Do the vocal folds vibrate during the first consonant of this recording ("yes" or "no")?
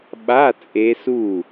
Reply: yes